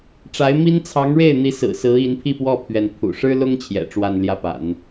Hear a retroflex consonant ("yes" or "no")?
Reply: yes